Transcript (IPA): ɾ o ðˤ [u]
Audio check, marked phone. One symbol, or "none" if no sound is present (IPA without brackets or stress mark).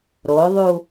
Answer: u